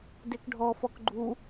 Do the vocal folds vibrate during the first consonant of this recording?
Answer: yes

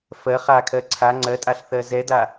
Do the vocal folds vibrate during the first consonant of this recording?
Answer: no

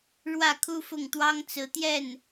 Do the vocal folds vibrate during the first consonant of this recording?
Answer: yes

